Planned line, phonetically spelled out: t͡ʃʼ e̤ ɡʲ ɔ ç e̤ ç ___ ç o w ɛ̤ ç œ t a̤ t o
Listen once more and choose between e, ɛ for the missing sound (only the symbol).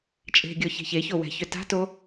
e